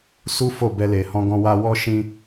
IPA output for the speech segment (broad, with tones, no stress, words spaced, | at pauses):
su˦ fo˦˨bɛ˧le˨hɔ̃˧ ɡɔ̃˧wa˧wɔ˦ ʃĩ˧